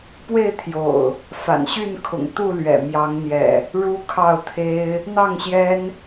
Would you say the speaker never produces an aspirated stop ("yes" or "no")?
no